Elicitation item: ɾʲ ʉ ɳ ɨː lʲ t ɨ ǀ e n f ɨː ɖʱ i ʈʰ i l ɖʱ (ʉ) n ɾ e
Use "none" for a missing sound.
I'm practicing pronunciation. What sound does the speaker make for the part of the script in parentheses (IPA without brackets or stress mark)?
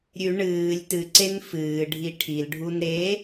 u